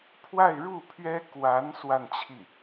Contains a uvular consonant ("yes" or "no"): no